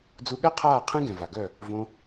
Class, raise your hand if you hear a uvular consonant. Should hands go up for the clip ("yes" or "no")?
yes